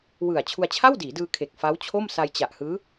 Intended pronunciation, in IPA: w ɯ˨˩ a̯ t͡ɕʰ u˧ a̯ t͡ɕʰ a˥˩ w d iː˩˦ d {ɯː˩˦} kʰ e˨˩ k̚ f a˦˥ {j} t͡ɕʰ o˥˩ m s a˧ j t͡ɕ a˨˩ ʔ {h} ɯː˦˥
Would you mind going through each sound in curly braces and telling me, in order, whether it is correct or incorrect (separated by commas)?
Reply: incorrect, incorrect, correct